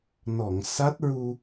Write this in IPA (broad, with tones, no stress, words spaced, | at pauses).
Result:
nɔ˨˩˨ŋsa˦˥t̚ɹu˧